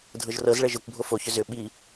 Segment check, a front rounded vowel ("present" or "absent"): present